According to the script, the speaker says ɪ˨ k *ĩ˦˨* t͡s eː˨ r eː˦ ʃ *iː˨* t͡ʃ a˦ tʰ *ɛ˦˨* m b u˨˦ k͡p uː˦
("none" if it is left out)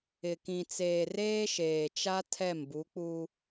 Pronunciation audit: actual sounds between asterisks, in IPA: ĩ˨, eː˨, ɛ˦˨

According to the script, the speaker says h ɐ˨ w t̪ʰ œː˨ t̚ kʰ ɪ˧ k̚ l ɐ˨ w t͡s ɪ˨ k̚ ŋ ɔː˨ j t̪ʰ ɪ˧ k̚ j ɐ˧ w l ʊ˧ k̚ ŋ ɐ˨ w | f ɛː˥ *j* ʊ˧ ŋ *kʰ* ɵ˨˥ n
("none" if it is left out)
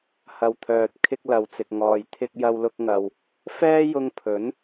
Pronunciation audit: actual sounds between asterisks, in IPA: j, pʰ

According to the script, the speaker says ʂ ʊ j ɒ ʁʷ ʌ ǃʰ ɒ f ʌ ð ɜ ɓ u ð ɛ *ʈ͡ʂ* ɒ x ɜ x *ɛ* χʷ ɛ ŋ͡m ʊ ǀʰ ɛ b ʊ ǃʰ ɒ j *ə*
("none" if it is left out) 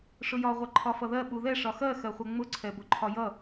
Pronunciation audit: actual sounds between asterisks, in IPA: ʂ, ɜ, ʌ

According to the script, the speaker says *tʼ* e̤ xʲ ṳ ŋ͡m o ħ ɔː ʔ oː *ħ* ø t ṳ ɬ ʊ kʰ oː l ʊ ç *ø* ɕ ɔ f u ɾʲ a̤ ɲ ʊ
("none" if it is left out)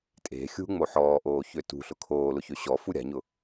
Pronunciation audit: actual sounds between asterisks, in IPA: tʼ, ç, ø

